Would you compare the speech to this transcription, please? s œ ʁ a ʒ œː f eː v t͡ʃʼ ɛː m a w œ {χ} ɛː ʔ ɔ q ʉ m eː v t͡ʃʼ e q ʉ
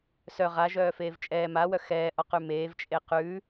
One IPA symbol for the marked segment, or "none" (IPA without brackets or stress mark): x